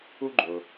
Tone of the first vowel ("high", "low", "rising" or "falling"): high